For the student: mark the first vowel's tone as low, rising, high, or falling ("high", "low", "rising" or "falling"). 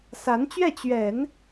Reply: rising